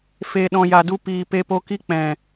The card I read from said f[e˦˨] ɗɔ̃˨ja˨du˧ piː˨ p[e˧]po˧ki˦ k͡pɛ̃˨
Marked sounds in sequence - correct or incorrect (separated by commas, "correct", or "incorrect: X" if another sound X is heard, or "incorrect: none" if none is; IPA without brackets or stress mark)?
incorrect: e˨, correct